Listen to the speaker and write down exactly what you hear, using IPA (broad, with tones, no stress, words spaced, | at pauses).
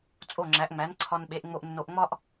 t͡sʼo˥˩ŋ͡ǁæ˩˥ʔŋ͡mæ˩˥n ǀʰɒ˧nɓe˩˥ʔ ŋ͡mo˧ʔnːo˧ʔŋ͡mɒ˥ʔ